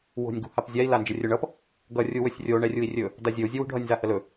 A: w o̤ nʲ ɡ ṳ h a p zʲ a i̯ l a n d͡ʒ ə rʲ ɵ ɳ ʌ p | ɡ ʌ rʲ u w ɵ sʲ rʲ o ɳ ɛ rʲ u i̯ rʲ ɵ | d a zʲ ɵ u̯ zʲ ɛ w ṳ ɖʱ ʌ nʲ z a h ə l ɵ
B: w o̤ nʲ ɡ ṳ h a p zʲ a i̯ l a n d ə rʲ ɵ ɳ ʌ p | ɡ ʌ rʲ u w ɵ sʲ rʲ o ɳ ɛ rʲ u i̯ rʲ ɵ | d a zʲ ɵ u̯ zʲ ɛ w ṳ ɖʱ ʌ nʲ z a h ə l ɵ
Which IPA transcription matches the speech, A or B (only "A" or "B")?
A